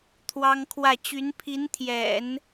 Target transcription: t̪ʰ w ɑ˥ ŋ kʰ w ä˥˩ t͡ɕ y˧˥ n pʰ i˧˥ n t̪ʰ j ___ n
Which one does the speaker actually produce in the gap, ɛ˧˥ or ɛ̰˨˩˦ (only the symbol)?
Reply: ɛ̰˨˩˦